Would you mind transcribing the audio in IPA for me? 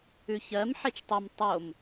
ʉ ç ɜ m ħ e t͡ʃ tˤ i m tˤ o m

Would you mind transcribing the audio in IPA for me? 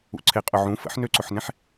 ṵ ǀʰ e qʼ ʊ ʕ ũ f ə̰ ħ n ø ǀ ʊ ħ n ẽ ħ

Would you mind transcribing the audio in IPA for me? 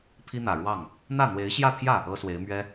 pʰ i˥ n̪ ä˨˩ ɻ w ɑ˥˩ ŋ | n̪ ä˥˩ n̪ w e˧˥ ɪ̯ ɕ j ä˥˧ t̪ʰ j ä˥˩ | ɤ˥ s w e˧˥ ɪ̯ m ɥ ɛ˥

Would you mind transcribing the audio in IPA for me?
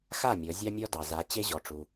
x a˥˩ mʲ ɔ˩˧ zʲ ɑ˧ mʲ ɔ˧ d ɑ˩ z a˩˧ t͡ɕ e˧ ʑ ɔ˩ ʈ͡ʂ u˩

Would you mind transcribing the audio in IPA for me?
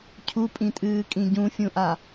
cʰ u pʼ ĩ tʼ ɨː kʼ ĩ ɟ ũ fʲ ũ ʔ a

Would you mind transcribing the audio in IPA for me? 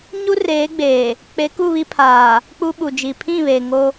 ɲ u˦ r eː˨˦ ɡ͡b eː˨ | k͡p e˨˦ k u˦˨ β i˦ pʰ aː˨ | k͡p u˦ ɓ u˨ d͡ʒ i˨ pʰ ĩ˦˨ β e˨ ŋ o˦

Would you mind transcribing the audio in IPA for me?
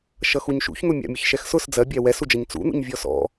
ʃ ʌ x u ɲ ʃ ṵ ç n̪ ʊ mʲ ɑ̰ mʲ ə ç ʃ ɛ x s ʊ s d͡z ɜ bʲ æ w ɛ s u d͡ʒ ʌ ɲ t͡s ṵ n̪ ṵ ɲ vʲ ɔ s ɔ̰

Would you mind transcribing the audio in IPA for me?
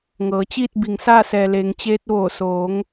ŋ ɤː˩˧ t͡ɕ iː˥˨ t̚ b i˩ ŋ s aː˥˨ s ɛː˩ l eː˩˧ ŋ t͡ɕ eː˧ t̚ ʋ oː˧˩ s oː˩˧ ŋ

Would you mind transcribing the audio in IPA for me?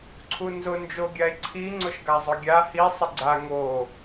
ǀʰ u n z ʊ n d͡ʒ o ɡʲ a e̯ ǀʰ i ŋ͡ǀ ʊ ʃ ɡ a zˤ ʊ ɡʲ a h i sˤ ɪ ɡ͡ǀ a ŋ o

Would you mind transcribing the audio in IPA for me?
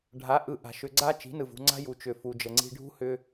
ɖʱ a˨˦ ʔ ɯ˨ ʔ a̤˨ ʃ ʏ˨ ɡ͡ǀ a˧ t͡ʃ i̤˨˦ n ɯ˨ v ṳ˧ ŋ͡ǀ a̤˦ j u˨ t͡ʃ ʏ˨ f u˨ d͡ʒ ə˨ ŋ͡ǀ i̤˧ ɖʱ ṳ˦ h ʏ˦

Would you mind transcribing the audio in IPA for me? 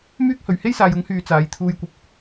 m yː˥ k̚ h ɵ˨ ɥ h e˥ j s aː˨ j ʊ˨˧ ŋ h yː˨ t͡s aː˨˧ j t̪ʰ uː˧ j kʷ ɐ˧ p̚

